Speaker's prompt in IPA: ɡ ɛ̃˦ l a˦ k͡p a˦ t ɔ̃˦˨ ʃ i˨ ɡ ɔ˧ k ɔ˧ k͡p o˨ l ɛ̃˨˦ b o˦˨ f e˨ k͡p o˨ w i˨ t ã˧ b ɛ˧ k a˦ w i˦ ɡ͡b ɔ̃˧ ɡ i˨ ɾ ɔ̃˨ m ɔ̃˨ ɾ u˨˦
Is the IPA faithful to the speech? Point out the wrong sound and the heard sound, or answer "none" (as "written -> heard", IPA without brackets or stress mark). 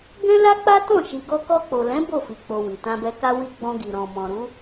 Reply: e˨ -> i˨